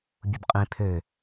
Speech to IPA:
bʲ u b qʼ ĩ pʰ ø

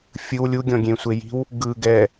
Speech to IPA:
fʲ ɯ w lʲ u ɡʲ ɔ̃ ɡʲ ẽ sʷ e j i̤ w | ɡ ɯ ɡ ɛ

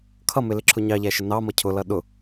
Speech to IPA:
kʰ ʌ m ɪ l ɪ ǁʰ ʊ ɲ ɑ ʎ æ ʃ ə n ɑ m ʌ cʰ ʊ l ʌ ɗ ʊ

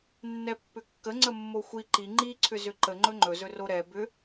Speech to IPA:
nː ɛ pː ʏ kː ə ŋ͡ǀ ə mː o xʷ i ǃ i ŋ͡ǃ i ǀʰ ʏ z ʏ ǃ ə ŋ͡ǃ ɵ ŋ͡ǃ ɵ z ɵ r o ɾ ɛ b ʏ

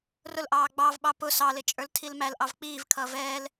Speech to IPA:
r ʊ l ʔ ɑː ɡ͡b ɑ v ɓ ɑ p ʊ s ɑ l ɪ t͡ʃʼ ə˞ l tʰ i l m æ l ʔ ɑ v k͡p iː v kʰ ʌː v ɛː l

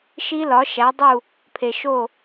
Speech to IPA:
ʃ i˦˥ l ɒ˩˥ ʃ æ˩˥ dˤ u˥˨ | pʰ e˨ ʃ o˥˨

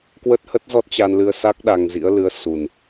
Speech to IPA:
k w ə˦˥ t̚ h ə˦˥ t̚ z ɔ˦˥ t̚ t͡ɕ a˧ n l ɨ˧ ə̯ s a˦˥ k̚ ɗ a˧ ŋ z ḭ˧˥ ə̯ l ɨ˨˦ ə̯ s u˨˩ n

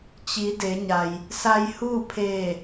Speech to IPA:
t͡ɕ i˩˧ d e˩˧ ɲ a˩ j | s a˧ j h uː˥˨ pʰ eː˧˩

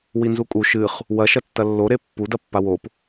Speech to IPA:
w i n z u kʼ u ʃ ɨ χ | w ɐ ʃ ɐ tː ɐ lː o ɾ e pː u d ɐ pː a w o p

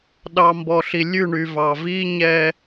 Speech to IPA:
ɗ ɑ˨ m b ɔ˨ ɬ i˨ lʲ ʉ˦˨ ɳ y˨ v ɑ˨ v i˦ ɲ ɛ˦

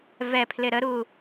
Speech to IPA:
v ɛ pʰ l ɪ ɾ ə ɾ u

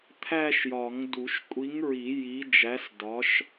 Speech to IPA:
t̪ʰ æ˥˧ ʃ j ɒ˨˩˦ ŋ d u˨˩˦ ʃ kʷʼ i˨˥ ŋ ɹ i˨˩˦ j i˨˥ d͡ʒ æ˨˥ s d ɒ˨˥ ʃ

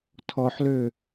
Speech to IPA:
tʰ ɔ ħ l ø

